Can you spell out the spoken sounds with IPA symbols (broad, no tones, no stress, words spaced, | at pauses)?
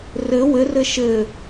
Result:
rɘ wɘ rɘʃɘ